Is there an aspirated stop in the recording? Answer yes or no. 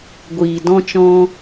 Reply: no